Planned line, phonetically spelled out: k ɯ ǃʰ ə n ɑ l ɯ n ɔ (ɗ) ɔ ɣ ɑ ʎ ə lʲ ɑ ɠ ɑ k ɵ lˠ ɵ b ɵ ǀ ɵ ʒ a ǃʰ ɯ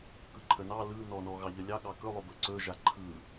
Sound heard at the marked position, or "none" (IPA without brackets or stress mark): n